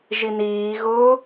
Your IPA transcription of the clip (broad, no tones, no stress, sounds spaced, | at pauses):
ʒ i n iː ɣ ʊː